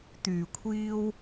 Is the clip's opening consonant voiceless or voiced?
voiceless